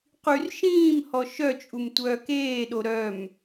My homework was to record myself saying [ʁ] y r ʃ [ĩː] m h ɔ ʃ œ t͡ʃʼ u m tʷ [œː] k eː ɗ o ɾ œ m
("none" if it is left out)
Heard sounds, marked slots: q, ĩː, œː

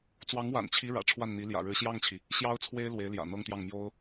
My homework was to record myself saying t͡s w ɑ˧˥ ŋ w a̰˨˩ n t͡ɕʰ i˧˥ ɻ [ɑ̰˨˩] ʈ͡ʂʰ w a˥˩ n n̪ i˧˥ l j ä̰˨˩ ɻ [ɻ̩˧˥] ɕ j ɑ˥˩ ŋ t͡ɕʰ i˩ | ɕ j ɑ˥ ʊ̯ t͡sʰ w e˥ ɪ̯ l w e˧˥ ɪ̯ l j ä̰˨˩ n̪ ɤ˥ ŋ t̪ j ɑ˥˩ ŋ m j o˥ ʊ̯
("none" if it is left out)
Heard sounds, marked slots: ä̰˨˩, ɻ̩˧˥

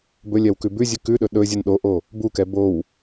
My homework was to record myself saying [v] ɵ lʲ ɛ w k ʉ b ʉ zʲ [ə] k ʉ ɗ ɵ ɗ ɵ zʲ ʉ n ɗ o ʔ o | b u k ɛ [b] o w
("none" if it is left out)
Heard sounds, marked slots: b, ʉ, b

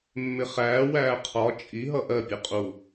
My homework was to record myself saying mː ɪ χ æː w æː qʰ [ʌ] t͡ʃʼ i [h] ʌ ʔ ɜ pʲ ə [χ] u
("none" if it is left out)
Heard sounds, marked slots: ɒ, ɦ, qʼ

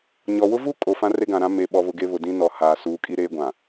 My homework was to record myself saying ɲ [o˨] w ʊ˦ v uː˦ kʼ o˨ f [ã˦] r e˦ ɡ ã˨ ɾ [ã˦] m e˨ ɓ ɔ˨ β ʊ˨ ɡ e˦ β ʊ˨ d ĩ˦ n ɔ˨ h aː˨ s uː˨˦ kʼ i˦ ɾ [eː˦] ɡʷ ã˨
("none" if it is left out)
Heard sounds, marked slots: ɔ˨, ã˦, ã˦, eː˦

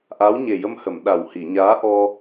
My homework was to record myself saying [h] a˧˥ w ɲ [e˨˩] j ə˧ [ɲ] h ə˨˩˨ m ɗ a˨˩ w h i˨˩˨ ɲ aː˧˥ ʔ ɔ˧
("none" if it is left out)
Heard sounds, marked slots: ʔ, e˨˩, m

